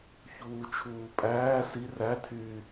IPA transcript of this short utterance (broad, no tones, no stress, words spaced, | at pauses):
çuːt͡ʃʰuːpʼæː si rætʰyː